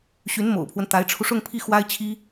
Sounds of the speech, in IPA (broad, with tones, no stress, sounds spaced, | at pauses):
ɕ y˧˥ n m o̰˨˩ ʊ̯ pʰ w ə˦ n t̪ a˧˥ ɪ̯ ʈ͡ʂʰ u˧ ʂ ʊ˥˧ ŋ pʰ i˥˩ x w a˥ ɪ̯ t͡ɕʰ i˥